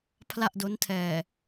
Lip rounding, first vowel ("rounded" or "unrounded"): unrounded